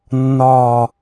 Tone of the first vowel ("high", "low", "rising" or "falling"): low